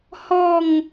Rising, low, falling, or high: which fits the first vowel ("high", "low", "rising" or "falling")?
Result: falling